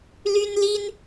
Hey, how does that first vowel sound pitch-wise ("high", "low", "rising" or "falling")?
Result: high